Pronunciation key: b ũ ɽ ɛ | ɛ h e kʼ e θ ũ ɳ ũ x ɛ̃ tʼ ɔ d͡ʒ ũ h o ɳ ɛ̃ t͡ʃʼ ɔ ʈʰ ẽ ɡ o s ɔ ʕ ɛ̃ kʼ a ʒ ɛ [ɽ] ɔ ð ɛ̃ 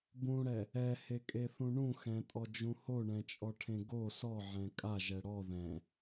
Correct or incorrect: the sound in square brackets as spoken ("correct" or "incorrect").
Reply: correct